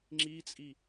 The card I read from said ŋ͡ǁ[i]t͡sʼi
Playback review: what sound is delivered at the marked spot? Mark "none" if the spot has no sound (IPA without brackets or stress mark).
i